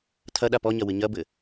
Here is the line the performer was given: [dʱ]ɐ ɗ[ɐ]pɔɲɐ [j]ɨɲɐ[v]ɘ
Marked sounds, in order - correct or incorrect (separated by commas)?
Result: incorrect, incorrect, incorrect, incorrect